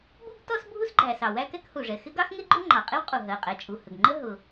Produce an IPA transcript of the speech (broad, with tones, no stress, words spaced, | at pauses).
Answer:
bu˥ɡtɔ˥s bʱu˥sɡ͡ǃæ˩sɑ˩ wæ˥kɛ˥khu˩ʐɛ˩ xɪ˥ɡɑ˥xŋɪ˥ɡ͡ǃʊ˥ ŋ͡ǃɑ˩qʼɪ˥wqʼu˩ ɦɜ˩qʼɛ˩t͡ʃʼu˩hə˩ɡ ŋ͡ǃə˥ ɦʊ˩